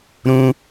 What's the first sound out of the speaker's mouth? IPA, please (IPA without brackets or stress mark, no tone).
ɾ